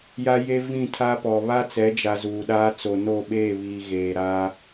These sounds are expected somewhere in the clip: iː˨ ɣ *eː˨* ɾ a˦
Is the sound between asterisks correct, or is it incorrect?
correct